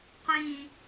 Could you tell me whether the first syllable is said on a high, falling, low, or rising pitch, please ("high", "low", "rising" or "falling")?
low